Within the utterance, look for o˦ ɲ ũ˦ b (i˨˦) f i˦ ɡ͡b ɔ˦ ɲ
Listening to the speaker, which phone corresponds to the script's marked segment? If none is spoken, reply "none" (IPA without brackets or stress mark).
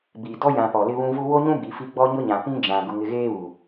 i˨˦